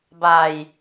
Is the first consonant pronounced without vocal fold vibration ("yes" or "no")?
no